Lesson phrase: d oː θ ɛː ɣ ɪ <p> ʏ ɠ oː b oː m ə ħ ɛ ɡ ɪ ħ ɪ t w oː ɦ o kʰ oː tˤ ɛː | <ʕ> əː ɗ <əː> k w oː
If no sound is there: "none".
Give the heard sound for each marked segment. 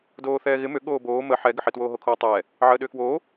m, ʕ, ʏː

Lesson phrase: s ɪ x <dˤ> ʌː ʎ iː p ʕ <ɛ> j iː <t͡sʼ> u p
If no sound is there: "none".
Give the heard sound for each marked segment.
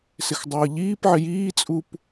dˤ, ɪ, t͡sʼ

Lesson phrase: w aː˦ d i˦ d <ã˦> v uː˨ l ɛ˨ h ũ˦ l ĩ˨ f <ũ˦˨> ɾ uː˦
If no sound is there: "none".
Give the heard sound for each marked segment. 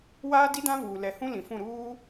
ã˦, ũ˦˨

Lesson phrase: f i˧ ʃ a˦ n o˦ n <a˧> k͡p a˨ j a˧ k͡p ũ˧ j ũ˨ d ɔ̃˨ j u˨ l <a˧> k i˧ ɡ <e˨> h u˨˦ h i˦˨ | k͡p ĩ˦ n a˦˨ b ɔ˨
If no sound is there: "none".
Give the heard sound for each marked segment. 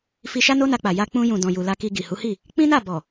a˧, a˧, i˨

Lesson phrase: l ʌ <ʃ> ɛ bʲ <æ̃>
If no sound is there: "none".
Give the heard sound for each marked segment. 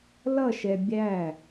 ʃ, æ

